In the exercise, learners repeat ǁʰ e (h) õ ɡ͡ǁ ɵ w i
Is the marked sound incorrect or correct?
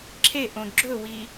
incorrect